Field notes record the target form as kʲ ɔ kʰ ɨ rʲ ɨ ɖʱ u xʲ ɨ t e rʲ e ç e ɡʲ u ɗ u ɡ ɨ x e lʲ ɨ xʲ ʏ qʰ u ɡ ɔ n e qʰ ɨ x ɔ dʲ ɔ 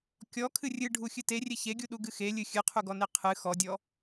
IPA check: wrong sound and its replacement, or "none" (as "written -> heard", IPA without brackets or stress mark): ʏ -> ɨ